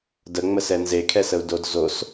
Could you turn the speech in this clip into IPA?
d ə ŋ͡m ə s ɛ n z e kʰ ɛ s ə u̯ d o d z o s

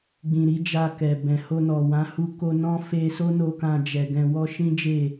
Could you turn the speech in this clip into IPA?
ɡ͡b ĩ˨ ɾ i˨˦ d͡ʒ a˧ k ɛ˨ b ɛ̃˨ h o˧ n ɔ˨ w ã˨˦ h u˧ k o˧ n ɔ̃˦ f e˧ s o˦ n o˧ k ã˧ d͡ʒ ɛ˨ ɡ ɛ̃˧ w ɔ˧ ʃ ĩ˦ d͡ʒ e˦˨

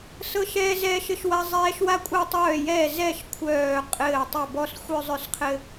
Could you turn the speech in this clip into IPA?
s ɤ˦ ʃ ɛː˦ z ɛː˦ ʃ ɘ˦ ʃ w a˦ zˤ ɛː˦ ʃ w a˦ kʷʼ ɛ˦ tˤ œː˦˨ j ɛː˦˨ z ɛ˦˨ ʃ kʷʰ œː˦˨ qʼ ɘː˦˨ tˤ ɛ˦˨ b ɔ˦ s xʷ œ˦ zˤ œ˦˨ s qʰ ɘ˦

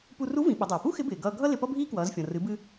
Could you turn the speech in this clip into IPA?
p u˧ r u˧˥ v ĩ˩˧ ɓ ə˩˧ dˤ ʌː˩ p u˥ x ɪ˧˥ b ɪː˩ ɡ ʌː˧ ɡʱ ʌ˥ l ɪ˧ p ʌ˥ bʱ iː˥ k w ʌː˩˧ z fʲ ɔ̃˩ r ɨ˩˧ b ɨ˧

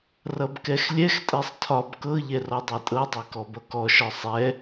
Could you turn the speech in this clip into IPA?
r ʌ b k ɛ x lʲ ɛ x tʼ ɛ sˤ tʰ ɒ b k ɤ ʎ ɛ r ɔ dˤ e tʼ ɤ dˤ e k ɔ b ʌ k ɔ ʃ ɒ sˤ ɛ

